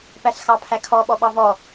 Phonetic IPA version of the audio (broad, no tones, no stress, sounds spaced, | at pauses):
p æ ɬ x ɑ pʰ æ kʰ ɔ ɓ ɔ ɓ ɑ v ɔ